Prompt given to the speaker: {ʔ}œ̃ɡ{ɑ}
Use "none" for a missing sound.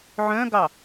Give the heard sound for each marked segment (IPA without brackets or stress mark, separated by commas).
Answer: ʕ, ɑ